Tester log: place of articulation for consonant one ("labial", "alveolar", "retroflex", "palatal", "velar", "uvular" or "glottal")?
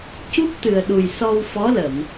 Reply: palatal